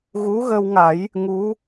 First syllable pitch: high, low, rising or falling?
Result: rising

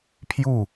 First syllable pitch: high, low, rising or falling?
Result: falling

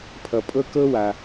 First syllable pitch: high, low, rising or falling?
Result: low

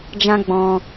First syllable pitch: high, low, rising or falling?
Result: high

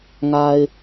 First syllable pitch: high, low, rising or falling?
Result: low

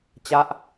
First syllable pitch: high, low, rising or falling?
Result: falling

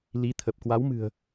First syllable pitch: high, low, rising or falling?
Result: rising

